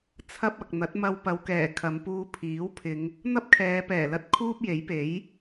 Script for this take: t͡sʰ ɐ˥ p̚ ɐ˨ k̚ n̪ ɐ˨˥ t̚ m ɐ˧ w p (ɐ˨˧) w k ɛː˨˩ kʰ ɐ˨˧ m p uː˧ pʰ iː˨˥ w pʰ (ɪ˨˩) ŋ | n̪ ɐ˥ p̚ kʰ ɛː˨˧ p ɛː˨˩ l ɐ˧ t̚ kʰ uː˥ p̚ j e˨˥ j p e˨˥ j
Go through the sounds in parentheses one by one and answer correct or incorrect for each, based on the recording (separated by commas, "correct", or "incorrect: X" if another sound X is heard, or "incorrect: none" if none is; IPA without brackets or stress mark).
correct, incorrect: ɪ˨˧